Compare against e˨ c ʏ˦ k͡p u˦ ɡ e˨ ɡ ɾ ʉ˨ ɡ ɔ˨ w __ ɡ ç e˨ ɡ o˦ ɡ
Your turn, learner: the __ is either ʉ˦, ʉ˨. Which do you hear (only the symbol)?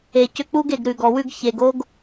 ʉ˦